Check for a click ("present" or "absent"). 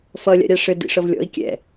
absent